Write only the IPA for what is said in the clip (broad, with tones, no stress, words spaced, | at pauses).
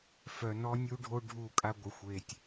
fœ˨nɔ˦nʲu˦ɖʱo˦ ɖʱu˦˨ kʼa˦ ɡʷɪ˨ xʷe˨tʲ